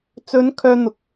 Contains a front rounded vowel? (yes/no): yes